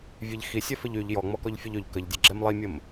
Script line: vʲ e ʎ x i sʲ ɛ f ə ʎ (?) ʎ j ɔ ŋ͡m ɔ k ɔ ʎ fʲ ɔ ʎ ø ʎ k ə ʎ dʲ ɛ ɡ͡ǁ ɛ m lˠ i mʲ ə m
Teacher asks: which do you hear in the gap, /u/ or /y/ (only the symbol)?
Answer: y